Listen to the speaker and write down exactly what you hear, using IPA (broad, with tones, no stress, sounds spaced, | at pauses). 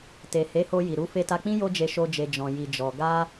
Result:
t e˨ h e˨˦ h o˧ j i˨ ɾ u˨˦ f e˧ t a˧ k͡p ĩ˦ j o˦ d͡ʒ e˧ ʃ o˧ d͡ʒ e˨ d͡ʒ ɔ̃˨ j i˨ d͡ʒ ɔ˨ ɡ a˧